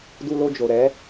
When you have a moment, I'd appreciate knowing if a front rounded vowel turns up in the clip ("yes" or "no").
no